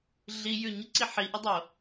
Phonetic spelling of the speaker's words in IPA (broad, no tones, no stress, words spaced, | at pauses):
ɮi jʉɲəǀi ħiʔɪdˤo